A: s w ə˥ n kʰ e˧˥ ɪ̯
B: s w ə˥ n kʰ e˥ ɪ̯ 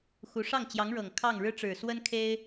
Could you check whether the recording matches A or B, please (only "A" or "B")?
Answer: B